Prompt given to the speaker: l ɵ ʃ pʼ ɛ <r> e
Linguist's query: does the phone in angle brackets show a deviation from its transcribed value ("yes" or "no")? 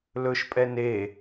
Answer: yes